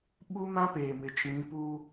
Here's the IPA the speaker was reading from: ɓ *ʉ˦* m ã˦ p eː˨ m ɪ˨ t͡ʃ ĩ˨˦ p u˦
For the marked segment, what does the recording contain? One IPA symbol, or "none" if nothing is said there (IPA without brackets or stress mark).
u˦